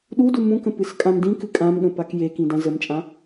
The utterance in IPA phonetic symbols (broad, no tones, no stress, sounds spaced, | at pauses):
ɗ u d u m ũ k ə̃ p ɨ s kʼ ã m d ĩ k ɨ kʼ ã m ɠ ə̃ p a k j e k ĩ d ã z ə m t͡ʃʼ ã